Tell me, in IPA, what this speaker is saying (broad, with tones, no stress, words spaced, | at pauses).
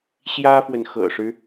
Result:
ɕjä˥fwə˨nxɤ̰˨˩ʂɻ̩˦